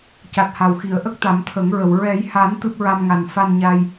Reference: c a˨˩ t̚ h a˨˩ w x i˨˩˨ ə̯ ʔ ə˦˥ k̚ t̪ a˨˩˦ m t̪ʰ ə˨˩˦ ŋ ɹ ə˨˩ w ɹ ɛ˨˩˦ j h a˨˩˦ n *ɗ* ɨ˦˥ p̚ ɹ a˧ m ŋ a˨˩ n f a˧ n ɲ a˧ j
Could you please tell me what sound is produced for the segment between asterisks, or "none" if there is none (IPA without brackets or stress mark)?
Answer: t̪